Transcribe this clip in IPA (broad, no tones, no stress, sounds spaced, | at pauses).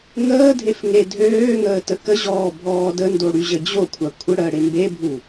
ŋ əː dʱ e f ŋ e dʱ øː ŋ əː t ə k ə ʑ ɔː bʱ ɔː d ə n d o ɽ y ʑ ə d͡ʑ o kʷʰ a kʷʰ ə ɽ əː ɽ e m b e bʱ u